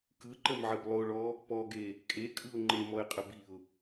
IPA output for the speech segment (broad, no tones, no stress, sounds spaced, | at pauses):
k ɯ ǃ ə m ʕ ə b lˠ o ɭ ɔ | p ɔ ɡ e | kʼ e kʼ ɯ ʊ̯ ŋ͡ǃ e m ɔ ɪ̯ qʼ ə b i ʊ̯